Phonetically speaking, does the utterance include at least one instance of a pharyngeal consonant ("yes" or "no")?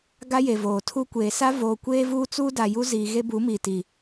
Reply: no